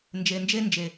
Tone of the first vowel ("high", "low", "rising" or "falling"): low